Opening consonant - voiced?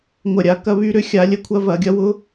yes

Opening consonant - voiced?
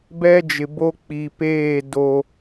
yes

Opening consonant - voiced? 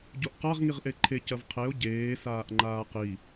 yes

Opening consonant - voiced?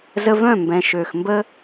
yes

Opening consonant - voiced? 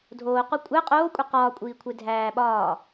yes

